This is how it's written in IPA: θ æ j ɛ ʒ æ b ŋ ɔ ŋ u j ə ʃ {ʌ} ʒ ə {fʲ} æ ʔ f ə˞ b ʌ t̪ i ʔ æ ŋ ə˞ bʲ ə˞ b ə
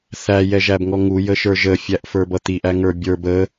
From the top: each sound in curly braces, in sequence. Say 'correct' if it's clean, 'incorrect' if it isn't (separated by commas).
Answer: incorrect, correct